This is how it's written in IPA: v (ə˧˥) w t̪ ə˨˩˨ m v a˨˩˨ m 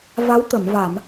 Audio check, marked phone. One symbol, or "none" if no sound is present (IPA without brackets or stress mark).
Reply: a˧˥